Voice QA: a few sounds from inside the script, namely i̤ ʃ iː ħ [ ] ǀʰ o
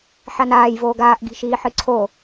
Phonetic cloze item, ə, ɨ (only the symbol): ɨ